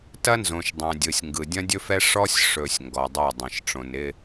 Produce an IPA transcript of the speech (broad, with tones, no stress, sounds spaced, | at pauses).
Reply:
t ɐ˦ n z õ˨ ʃ dˤ ɛ̃˨ dʲ ɯ˨ sʲ ŋ ɡ ɯ˨ dʲ ɐ̃˦ dʲ ɵ˦ f ɛ˦ ʂ ɔ˦ sʲ ʂ ɵ˨ sʲ ŋ ɡ ɔ˨ dˤ o˦˨ dˤ ɐ̃˨ ʃ ʈ͡ʂ õ˨ n ɪ˦